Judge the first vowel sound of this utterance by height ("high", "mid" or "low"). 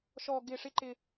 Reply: mid